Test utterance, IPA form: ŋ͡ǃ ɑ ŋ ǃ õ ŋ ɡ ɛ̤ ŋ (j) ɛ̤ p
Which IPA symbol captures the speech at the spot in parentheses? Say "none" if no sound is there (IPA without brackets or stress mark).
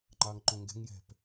j